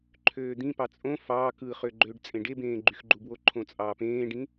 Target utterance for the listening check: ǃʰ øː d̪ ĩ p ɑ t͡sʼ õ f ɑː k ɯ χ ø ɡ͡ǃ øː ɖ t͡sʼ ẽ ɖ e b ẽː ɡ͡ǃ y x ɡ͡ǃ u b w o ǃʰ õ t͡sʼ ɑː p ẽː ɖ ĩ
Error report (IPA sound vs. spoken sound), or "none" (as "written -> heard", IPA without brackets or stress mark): none